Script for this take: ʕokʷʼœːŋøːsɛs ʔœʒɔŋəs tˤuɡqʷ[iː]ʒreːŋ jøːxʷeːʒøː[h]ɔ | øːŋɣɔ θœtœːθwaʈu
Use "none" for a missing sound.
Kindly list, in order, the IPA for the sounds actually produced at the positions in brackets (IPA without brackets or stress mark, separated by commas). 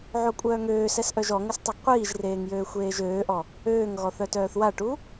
iː, ʔ